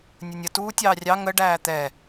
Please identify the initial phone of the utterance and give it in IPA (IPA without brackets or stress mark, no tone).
nʲ